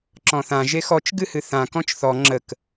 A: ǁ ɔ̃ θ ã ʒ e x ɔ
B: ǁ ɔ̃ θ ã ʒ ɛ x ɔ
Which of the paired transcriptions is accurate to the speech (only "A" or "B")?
A